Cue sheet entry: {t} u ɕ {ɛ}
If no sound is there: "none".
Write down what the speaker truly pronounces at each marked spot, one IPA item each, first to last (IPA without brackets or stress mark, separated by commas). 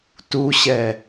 t, ɛ